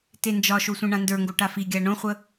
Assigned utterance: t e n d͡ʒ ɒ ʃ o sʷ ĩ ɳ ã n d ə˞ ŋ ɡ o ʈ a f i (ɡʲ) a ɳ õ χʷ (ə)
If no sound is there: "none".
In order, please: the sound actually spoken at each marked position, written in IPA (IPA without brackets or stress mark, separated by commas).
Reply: ɡʲ, ə